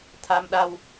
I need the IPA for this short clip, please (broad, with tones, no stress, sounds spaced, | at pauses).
t̪ʰ a˧ m ɗ a˧ w